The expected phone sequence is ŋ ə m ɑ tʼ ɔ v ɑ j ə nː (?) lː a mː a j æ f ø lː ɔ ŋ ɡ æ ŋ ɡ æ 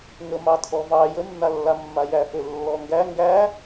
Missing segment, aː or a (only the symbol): a